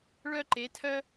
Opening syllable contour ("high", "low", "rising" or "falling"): high